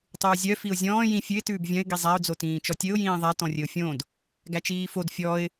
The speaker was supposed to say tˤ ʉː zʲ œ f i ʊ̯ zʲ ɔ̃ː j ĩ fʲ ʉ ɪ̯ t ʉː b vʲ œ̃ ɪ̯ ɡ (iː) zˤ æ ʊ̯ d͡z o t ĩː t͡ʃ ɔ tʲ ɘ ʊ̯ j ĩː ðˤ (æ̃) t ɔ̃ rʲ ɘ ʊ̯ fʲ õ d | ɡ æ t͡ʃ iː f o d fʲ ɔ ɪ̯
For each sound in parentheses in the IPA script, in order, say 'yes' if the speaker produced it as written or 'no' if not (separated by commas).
no, no